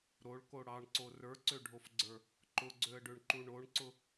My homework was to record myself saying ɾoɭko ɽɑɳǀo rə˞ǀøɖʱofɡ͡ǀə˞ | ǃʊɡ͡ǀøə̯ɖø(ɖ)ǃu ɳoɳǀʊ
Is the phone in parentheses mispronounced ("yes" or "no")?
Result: yes